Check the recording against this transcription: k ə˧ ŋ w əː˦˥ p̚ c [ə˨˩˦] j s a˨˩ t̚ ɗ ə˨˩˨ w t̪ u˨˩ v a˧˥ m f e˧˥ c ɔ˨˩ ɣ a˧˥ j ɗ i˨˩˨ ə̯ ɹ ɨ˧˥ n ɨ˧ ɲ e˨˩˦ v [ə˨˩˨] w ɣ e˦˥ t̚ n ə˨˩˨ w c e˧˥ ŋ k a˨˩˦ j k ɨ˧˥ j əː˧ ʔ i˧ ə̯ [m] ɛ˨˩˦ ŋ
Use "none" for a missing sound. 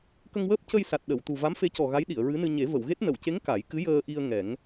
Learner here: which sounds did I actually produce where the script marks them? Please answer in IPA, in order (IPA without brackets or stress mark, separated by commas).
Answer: ə˧, ə˨˩˨, ŋ